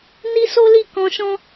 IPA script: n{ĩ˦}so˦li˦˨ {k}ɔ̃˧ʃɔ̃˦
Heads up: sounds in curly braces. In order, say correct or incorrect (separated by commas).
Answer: incorrect, correct